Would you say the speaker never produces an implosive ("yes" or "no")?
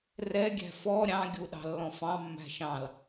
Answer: no